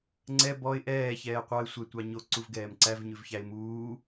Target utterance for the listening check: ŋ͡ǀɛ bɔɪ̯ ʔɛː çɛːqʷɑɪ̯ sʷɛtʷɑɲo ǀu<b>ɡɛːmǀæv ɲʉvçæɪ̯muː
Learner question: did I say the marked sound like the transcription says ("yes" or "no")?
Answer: no